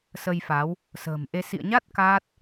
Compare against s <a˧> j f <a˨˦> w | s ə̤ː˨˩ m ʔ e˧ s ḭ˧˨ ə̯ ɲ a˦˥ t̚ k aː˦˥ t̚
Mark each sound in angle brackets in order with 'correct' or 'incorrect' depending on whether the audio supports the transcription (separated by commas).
incorrect, correct